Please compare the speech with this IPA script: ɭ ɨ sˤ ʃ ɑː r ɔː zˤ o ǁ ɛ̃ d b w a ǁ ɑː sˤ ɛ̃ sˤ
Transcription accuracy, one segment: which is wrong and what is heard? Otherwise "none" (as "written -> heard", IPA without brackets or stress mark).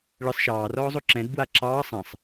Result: none